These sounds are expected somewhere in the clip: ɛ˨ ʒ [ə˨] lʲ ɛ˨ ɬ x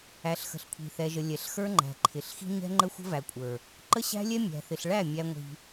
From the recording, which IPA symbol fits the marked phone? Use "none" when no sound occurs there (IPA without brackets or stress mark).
ə˨